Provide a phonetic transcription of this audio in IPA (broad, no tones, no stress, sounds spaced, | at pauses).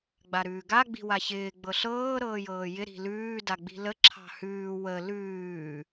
ɡ͡b a ɾ ʉː ɡ a ɡ͡b i̤ w a ç ɪː ɡ͡b ɤ ɬ ɤː ɾ ɤː j ɤː j ɪ ɾ i̤ l ʉː d a ɡ͡b i̤ l ə ǁʰ ɑ̤ h ʉː w ə l ʉː